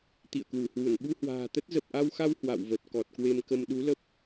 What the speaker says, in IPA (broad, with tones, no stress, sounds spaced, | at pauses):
t̪ ḭ˧˨ ə̯ k w u˧˩ h w u˧˩ n ɓ u˧ h w a̤ː˨˩ t̪ ə˦˥ t̚ z ə˨˩ p̚ ʔ a˧ w x a˧ w h w a̰˧˨ w v ə˨˩ t̚ k ɔ˨˩ t̚ k w e˧ m k ə˧ m ɗ u˨˦ l ə˦˥ p̚